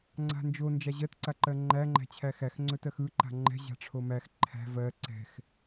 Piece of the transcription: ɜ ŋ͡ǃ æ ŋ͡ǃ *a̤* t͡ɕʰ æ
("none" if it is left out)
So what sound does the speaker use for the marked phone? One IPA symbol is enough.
æ̤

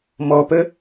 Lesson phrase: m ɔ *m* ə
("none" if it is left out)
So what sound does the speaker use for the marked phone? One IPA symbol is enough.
p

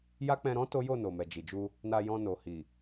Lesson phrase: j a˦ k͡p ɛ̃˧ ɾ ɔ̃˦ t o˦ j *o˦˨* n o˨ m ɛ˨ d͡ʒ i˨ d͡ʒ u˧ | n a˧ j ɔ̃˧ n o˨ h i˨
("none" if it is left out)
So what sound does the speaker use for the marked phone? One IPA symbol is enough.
o˦˨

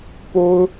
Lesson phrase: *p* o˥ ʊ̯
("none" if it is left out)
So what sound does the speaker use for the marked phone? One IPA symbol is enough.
p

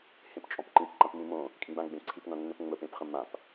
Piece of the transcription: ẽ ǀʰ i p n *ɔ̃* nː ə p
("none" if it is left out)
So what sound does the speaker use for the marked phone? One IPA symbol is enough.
ɔ̃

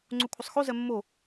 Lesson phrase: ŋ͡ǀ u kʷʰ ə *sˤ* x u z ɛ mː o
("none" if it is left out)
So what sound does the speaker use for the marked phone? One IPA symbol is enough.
sˤ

